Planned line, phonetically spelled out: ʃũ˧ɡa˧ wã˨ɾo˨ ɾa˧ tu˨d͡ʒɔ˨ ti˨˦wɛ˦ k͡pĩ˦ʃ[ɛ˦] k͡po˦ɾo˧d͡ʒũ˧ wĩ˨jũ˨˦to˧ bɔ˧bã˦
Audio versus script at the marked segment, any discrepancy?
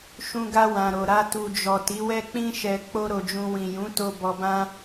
yes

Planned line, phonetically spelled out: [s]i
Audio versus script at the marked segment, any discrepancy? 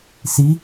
no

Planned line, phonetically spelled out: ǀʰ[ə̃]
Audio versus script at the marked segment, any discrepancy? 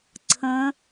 no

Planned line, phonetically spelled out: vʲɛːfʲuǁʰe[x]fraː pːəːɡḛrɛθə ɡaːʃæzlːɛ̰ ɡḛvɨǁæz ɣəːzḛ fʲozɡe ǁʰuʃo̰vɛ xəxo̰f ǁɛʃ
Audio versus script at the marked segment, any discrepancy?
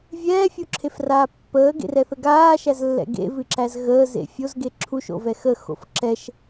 yes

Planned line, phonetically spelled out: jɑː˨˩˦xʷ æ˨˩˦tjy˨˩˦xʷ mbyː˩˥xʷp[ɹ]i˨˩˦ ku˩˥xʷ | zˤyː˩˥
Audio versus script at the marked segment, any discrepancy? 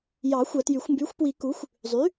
yes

